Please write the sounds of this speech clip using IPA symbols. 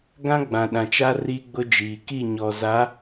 ɡã˦ ɡ͡bã˨ɗã˨t͡ʃa˦ ri˦ɡ͡bʊ˦d͡ʒiː˨ ki˦˨ɲɔ˨za˨˦

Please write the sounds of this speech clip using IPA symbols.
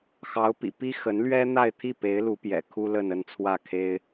xɑ˧˥ʊ̯pḭ˨˩pi˥ xə˧˥nlɥɛ˥n̪a˥˧ɪ̯ t̪ʰi˥˩pe˧˥ɪ̯lu˧˥pjɛ̰˨˩ kʰu˥lə˥˧nə˥˧n t͡sʰwä˥˩kʰe˥ɪ̯

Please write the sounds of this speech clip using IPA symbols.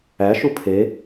æʃu pʰe

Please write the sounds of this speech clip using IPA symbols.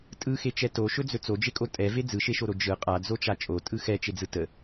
tʼɯxet͡ʃɛ toʃɵd͡zɵ t͡sod͡ʒekʼo tʼɛve d͡zɯʃeʃoɾo d͡ʒɯ qʼad͡zot͡ʃa t͡ʃʼotʼɯ xɛt͡ʃed͡zɯ tə

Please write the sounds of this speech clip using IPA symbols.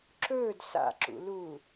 ǁɵːd sa̰ǁṵluː

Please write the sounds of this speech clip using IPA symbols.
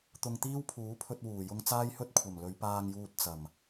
t̪ʊ˨ŋt̪iː˥wpʰuː˨˥pʰɵ˧t̚ wuː˨˩jʊ˥ŋ t͡saː˥jhɵ˥t̚kʷʰɐ˨˩m lɵ˨˧ɥpaː˧ŋjuː˧t̚ t͡sɐ˨˩m

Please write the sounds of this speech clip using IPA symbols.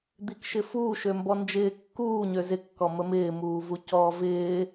d̪ikʃɪfuː ʃømbɔnd͡ʒɪː kːuː ɲøzɪ kːɔməmɪː muːvucɔːvɪː

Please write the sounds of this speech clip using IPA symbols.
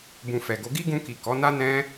bũ˨ fɛ˨ɡo˨˦ ɡi˦ɡũ˧ki˨ kɔ˨˦na˦nɛ̃˦

